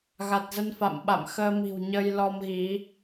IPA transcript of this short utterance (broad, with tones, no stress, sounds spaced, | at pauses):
ɣ a˨˩ t̚ z ə˧ n f a̰˧˨ m ɓ a̰˧˨ m x əː˧ m i̤˨˩ w ɲ ə˧ j l ɔ˧ m ɣ i˨˦